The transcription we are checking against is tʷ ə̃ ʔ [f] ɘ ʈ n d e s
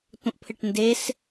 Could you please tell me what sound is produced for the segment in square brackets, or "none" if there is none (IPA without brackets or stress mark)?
pʰ